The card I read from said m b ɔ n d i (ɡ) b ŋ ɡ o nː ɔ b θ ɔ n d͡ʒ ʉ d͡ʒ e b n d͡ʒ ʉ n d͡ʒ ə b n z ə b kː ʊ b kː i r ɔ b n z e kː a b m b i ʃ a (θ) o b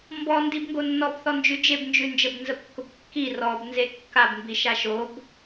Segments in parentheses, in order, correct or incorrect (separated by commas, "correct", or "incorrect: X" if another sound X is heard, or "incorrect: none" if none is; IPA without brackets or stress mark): incorrect: none, incorrect: ʃ